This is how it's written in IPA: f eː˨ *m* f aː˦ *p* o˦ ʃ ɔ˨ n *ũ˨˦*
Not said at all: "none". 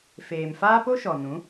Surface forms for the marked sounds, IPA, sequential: m, p, ũ˨˦

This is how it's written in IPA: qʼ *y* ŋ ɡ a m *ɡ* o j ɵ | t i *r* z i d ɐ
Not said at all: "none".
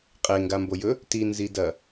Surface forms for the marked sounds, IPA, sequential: e, b, n

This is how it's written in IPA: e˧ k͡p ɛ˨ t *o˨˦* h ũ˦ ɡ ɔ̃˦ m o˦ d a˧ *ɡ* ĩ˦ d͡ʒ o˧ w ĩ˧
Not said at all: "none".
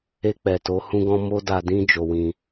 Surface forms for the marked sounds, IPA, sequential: o˨˦, d

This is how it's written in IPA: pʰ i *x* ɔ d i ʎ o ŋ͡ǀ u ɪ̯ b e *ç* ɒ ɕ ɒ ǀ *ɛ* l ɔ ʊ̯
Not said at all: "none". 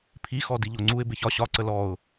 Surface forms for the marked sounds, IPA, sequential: x, ç, ə

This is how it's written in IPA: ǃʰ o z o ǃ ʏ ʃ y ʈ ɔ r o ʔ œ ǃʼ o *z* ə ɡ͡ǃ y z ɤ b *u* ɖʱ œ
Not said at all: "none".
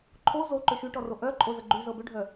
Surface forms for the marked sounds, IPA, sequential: z, ʏ

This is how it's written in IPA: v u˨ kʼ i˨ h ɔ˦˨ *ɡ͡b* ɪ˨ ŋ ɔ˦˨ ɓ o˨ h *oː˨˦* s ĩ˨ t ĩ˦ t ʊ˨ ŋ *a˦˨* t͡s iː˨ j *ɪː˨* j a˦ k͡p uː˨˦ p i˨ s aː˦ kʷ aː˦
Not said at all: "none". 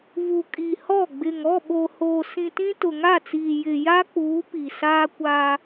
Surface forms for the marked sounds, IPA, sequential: ɡ͡b, oː˨, a˦˨, ɪ˨

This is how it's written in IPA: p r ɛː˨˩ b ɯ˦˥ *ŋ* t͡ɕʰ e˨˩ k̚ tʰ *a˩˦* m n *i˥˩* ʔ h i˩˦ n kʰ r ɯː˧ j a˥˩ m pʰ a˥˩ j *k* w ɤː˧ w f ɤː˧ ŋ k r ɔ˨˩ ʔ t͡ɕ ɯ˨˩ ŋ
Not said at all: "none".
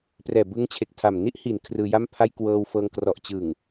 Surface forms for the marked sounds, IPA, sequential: ŋ, a˨˩, i˥˩, k

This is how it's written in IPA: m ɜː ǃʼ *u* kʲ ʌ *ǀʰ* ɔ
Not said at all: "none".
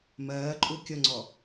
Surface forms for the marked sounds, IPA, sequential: u, ŋ͡ǀ

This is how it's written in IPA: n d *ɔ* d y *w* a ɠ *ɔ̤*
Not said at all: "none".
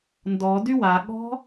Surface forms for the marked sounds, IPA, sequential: ɔ, w, ɔ̤

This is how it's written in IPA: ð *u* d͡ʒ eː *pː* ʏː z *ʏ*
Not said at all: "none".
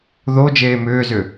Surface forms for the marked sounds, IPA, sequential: o, m, ʏ

